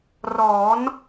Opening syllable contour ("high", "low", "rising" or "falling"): rising